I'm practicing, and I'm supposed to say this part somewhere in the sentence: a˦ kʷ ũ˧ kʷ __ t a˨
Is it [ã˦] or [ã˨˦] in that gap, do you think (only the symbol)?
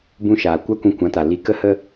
ã˨˦